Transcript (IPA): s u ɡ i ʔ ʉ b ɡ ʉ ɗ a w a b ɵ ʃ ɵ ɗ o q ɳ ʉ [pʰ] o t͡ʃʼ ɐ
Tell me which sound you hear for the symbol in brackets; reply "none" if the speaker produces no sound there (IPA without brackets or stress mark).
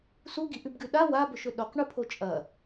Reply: pʰ